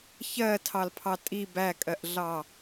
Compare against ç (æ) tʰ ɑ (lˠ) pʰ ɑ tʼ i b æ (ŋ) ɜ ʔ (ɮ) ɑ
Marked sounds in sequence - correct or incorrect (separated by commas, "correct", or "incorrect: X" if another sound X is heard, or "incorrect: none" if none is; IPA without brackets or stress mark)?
incorrect: ɜ, incorrect: l, incorrect: kʼ, correct